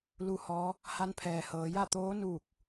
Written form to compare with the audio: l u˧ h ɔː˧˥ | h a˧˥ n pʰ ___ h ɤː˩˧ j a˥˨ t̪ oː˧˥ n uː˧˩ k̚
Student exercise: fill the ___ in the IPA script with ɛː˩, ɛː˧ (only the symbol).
ɛː˩